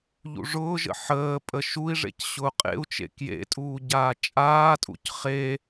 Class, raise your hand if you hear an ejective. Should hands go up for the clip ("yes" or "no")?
yes